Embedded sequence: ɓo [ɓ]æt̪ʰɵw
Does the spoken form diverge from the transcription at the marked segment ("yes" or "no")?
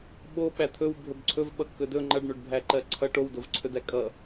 no